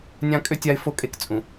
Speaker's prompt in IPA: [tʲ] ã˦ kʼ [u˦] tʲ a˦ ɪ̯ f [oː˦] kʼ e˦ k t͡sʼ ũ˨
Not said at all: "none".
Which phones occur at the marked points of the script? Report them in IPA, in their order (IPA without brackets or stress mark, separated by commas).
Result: nʲ, ʏ˦, o˦